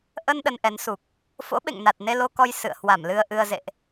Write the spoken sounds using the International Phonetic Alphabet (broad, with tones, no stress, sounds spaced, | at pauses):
ʔ ə˧ n ɗ ə˧ n ʔ ɛ˨˦ n s u˨˩ k̚ | f o̰˧˥ ɓ ḛ˧˨ ŋ n a˨˩ t̚ n e˧ l o˧ k ɔ˧ j s ɨ̰˧˨ ə̯ h w a˧˩ m l ɨ˧ ə̯ ʔ ɨ˧ ə̯ z ḛ˧˨ ʔ